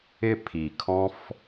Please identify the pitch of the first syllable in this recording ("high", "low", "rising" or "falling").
falling